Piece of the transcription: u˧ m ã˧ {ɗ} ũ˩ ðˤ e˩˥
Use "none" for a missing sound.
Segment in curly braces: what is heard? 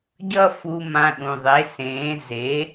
ɗ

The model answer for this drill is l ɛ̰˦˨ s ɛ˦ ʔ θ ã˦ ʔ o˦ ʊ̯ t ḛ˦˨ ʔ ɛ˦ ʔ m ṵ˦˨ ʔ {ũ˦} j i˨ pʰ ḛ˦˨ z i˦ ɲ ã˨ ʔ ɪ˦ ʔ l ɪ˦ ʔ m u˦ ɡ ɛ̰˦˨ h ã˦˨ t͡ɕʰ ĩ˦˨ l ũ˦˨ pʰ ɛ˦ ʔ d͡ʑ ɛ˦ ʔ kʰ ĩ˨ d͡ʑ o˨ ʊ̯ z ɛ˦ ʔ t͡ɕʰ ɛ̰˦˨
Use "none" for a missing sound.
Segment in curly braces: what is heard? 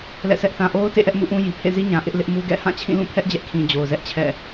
ũ˦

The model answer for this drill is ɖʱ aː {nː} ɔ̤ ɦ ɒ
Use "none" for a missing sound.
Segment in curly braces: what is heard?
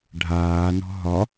n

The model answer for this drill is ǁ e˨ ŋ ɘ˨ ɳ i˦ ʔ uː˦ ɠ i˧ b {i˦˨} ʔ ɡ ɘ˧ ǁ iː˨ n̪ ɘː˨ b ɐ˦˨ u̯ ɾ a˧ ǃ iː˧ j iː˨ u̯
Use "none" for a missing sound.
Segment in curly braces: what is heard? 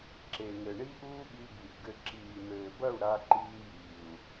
i˨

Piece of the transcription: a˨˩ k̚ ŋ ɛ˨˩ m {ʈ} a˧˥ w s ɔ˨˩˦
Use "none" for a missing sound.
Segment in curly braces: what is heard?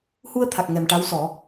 ʈ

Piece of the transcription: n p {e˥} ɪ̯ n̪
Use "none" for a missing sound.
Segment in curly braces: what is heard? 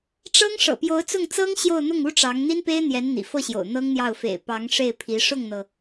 e˥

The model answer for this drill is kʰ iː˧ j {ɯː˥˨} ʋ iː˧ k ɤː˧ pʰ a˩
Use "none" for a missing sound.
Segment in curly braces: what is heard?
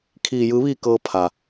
ɯː˧˥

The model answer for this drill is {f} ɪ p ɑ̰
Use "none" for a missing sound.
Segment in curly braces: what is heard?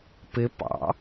p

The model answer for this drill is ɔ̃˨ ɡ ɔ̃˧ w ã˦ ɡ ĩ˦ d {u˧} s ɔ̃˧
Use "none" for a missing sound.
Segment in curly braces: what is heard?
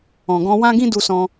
u˧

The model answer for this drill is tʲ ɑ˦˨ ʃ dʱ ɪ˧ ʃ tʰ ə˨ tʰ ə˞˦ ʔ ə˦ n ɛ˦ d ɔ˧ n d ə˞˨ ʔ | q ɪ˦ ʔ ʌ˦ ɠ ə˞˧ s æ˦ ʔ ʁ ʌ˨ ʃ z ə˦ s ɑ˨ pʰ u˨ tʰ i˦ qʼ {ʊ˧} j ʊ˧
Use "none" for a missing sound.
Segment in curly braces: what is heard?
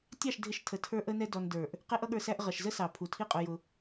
ʊ˧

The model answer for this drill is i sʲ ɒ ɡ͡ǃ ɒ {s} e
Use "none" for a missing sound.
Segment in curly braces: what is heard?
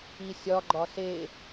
s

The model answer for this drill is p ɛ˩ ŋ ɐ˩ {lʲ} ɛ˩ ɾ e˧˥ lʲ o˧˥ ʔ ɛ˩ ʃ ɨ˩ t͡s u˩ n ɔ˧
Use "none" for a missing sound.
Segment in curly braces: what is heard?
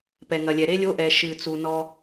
lʲ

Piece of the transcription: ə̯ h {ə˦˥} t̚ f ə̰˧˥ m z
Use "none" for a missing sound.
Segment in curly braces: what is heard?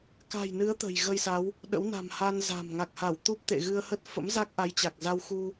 ə˦˥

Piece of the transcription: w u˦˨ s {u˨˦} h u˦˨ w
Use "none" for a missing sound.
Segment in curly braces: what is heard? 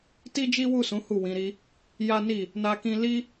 ũ˨˦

